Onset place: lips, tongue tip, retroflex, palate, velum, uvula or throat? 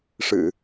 retroflex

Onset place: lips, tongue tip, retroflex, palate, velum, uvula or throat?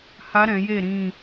throat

